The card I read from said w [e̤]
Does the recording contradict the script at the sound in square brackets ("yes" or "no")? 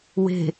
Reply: no